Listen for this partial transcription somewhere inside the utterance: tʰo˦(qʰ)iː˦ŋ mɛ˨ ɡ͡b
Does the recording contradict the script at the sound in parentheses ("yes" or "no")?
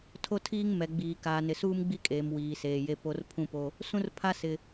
yes